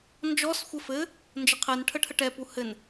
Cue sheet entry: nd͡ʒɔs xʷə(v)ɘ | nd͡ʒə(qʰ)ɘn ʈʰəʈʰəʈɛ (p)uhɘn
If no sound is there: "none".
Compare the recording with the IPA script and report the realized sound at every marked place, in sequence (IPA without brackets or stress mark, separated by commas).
f, qʰ, p